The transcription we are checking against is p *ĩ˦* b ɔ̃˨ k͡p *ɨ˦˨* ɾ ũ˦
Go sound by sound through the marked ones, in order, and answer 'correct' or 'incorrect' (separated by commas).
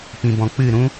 incorrect, correct